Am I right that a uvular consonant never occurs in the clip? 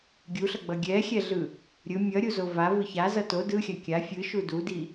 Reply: yes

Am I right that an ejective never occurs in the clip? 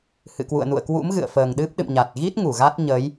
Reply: yes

